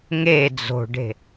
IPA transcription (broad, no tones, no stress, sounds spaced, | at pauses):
ŋ e d͡z o̤ ɖ e̤